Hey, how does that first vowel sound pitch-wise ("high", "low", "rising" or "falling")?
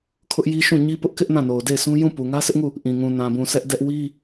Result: high